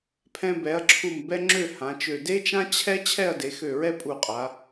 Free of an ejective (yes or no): no